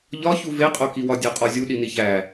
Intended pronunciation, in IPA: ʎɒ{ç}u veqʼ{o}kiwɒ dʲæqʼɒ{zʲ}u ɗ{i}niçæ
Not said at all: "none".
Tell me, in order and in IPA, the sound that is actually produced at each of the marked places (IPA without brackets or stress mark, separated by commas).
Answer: ç, o, zʲ, i